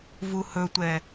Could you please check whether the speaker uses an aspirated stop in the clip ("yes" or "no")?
no